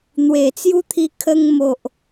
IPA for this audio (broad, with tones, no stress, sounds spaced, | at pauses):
n̪ w e˨˩ t͡s j u˦ t̪ʰ i˧ kʰ ə˧ ŋ m o˨ ʔ